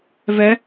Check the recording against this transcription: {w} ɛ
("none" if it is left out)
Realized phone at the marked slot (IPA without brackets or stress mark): v